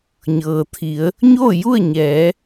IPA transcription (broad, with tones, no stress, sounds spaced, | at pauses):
ɲ ɤː˩ t̪ʰ i˩˧ ə̯ | ɲ oː˥˨ j u˥˨ ə̯ ɲ ɛː˩˧